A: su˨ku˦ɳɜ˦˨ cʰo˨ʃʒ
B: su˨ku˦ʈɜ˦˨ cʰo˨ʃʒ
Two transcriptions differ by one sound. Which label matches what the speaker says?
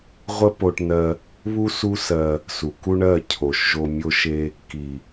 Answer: A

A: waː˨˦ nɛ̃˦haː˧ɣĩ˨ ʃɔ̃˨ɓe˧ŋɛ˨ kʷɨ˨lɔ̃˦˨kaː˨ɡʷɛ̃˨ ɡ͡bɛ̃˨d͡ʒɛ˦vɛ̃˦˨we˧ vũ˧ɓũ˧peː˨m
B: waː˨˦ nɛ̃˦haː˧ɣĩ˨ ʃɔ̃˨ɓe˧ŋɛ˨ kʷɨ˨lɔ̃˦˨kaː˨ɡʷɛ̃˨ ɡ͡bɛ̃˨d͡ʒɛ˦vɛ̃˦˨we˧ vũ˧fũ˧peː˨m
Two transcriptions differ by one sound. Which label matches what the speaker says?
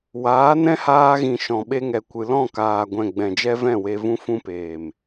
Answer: B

